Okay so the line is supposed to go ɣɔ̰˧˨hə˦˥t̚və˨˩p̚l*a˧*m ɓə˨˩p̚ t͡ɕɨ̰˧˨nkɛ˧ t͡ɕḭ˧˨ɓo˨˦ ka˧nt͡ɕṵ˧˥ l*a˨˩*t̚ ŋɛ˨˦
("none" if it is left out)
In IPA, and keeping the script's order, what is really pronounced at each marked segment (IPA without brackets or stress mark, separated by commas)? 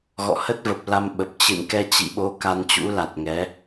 a˧, a˨˩